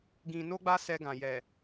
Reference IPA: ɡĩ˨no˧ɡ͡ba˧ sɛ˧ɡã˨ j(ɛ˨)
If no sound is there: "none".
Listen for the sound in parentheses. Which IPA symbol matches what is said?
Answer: ɛ˨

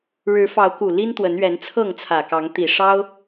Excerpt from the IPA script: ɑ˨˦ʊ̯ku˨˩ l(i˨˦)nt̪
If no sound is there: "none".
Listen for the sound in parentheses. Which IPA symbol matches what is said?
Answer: i˦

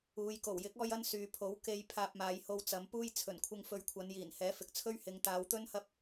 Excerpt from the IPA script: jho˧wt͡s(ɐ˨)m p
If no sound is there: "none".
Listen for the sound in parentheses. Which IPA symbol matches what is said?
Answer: ɐ˨˧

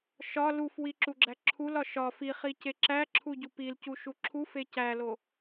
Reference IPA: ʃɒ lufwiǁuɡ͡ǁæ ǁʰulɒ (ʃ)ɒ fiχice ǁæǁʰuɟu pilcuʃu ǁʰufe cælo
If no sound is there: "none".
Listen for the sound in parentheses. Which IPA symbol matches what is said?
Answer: ʃ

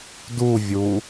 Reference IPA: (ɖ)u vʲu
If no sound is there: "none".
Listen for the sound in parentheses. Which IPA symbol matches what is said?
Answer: d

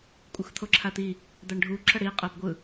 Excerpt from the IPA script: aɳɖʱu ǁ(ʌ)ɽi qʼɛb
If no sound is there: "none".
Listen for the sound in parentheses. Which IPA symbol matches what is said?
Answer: ʌ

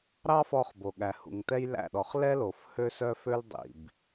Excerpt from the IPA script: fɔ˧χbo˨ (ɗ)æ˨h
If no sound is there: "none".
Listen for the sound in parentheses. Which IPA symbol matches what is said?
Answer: ɠ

